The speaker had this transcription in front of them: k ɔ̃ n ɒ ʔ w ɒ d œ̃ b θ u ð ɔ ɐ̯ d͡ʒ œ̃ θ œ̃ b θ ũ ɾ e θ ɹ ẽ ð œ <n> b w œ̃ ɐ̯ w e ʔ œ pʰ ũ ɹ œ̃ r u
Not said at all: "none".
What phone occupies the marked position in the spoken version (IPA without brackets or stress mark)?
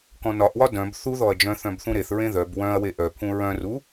none